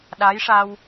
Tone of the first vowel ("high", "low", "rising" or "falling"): rising